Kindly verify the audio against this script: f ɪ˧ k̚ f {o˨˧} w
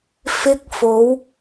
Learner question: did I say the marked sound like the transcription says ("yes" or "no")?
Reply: yes